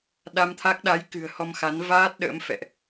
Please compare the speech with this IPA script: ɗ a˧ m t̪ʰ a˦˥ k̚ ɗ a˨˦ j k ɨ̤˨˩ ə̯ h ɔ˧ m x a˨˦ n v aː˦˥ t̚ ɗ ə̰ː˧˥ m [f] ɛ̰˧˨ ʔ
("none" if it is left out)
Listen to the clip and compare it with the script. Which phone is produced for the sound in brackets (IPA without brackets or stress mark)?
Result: f